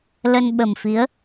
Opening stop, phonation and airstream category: implosive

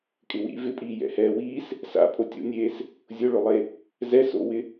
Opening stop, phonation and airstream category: ejective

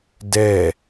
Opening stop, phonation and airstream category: plain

